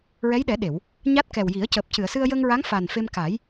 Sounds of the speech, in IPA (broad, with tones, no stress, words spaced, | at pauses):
ɹɛ˧˥jɗɛ˨˩˦ɗe˨˩˨w | ɲa˦˥t̚ kɛ˨˩w ji˨˩˦ə̯cəː˨˩p̚ cɨ˨˩˨ə̯sɨ˧ə̯jəː˧ŋɹa˧˥ŋ fa˨˩nfe˧mka˨˩˦j